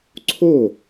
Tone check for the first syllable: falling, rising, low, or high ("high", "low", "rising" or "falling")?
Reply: falling